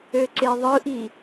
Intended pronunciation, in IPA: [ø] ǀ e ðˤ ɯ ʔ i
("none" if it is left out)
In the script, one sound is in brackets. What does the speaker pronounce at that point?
ø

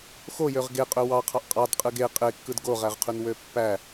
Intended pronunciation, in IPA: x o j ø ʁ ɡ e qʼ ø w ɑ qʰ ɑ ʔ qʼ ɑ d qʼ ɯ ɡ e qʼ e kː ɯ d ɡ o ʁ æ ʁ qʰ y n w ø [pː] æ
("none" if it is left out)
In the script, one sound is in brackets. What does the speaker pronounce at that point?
pː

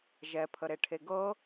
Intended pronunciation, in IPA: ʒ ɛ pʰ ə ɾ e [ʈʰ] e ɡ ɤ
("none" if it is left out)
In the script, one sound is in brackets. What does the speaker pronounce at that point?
ʈʰ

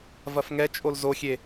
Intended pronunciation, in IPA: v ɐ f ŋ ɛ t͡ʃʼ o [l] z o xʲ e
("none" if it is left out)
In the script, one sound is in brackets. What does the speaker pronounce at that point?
l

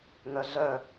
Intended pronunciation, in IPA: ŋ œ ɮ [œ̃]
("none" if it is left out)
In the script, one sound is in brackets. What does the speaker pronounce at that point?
œ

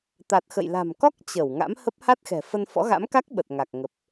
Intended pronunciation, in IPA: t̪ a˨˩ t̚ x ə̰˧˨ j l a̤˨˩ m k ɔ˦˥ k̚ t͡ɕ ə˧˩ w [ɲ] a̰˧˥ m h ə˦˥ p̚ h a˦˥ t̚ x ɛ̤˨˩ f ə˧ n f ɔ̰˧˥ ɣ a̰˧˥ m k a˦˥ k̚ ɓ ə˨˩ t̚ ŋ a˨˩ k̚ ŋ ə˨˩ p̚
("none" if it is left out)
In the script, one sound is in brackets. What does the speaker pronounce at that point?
ŋ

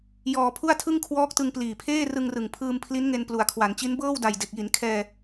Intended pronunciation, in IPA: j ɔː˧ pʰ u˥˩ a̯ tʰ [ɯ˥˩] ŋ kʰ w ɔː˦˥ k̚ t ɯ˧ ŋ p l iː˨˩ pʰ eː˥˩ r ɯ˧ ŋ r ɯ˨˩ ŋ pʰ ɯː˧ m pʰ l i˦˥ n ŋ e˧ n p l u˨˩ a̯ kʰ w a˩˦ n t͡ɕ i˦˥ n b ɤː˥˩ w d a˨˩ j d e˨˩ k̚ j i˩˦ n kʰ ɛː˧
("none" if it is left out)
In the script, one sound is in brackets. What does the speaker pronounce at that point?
ɯ˥˩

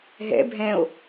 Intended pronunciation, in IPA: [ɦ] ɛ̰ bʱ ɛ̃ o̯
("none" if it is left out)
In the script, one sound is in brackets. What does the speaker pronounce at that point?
ɦ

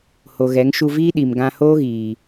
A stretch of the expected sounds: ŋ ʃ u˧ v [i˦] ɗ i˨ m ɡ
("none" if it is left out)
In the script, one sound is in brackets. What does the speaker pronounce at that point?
iː˦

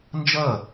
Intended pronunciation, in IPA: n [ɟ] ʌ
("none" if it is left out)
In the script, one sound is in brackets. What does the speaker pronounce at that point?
d͡ʒ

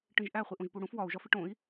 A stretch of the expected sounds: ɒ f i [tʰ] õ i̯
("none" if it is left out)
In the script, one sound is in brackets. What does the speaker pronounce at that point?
ʈ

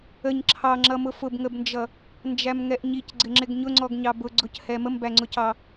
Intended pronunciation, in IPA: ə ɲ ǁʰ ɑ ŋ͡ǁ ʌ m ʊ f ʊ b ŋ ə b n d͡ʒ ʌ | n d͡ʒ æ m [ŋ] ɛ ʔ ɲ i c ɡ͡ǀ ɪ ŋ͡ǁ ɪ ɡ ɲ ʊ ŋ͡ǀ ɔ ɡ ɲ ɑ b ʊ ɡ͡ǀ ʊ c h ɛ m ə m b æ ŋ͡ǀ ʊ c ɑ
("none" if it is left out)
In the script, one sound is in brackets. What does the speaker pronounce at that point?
ŋ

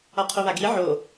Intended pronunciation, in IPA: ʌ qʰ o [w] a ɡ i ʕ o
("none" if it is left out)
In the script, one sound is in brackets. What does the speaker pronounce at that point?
β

